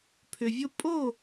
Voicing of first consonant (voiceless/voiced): voiceless